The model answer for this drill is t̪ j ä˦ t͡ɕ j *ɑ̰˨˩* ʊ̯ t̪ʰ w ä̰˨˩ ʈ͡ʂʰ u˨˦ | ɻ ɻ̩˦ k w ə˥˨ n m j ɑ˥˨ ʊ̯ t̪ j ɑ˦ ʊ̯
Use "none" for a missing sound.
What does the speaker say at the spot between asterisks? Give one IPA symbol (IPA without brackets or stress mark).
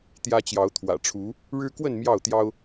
ɑ˨˦